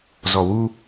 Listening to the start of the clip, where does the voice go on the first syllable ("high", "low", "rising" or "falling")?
low